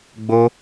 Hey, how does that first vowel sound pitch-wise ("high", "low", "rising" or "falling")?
high